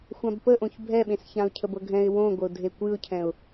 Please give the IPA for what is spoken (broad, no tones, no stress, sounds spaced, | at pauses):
xʷ ã b p ə ʔ õ ç bʱ ɛ ɓ ẽ s ç ã ʊ̯ cʰ ə b ɤ ɡʱ ɛ̃ ɪ̯ w õ ɡʷ ə ʊ̯ dʱ e kʷ ɨ ʊ̯ cʰ ɛ̃ ʊ̯